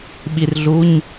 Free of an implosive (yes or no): no